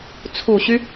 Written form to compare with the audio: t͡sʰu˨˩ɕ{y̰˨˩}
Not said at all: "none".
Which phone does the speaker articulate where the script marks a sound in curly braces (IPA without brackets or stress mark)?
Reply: y˦